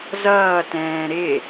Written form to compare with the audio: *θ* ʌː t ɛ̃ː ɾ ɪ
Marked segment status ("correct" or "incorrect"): incorrect